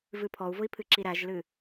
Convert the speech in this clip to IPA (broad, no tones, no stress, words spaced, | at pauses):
vɨpʰɔu̯vʊi̯ pʰɨǁiɾæʒlɨ